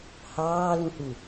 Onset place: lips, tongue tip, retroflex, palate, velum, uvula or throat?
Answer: throat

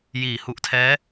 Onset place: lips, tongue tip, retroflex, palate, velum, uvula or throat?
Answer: palate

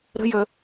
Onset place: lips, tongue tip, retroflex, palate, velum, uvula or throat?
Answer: tongue tip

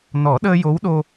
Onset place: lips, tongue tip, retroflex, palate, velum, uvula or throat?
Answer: tongue tip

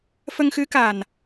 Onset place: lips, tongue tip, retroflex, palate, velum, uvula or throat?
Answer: lips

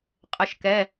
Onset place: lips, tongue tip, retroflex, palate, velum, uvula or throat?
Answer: uvula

